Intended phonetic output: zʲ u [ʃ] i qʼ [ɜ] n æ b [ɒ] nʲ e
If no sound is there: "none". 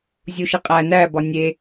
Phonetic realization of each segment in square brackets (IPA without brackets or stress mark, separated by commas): ʃ, æ, ɒ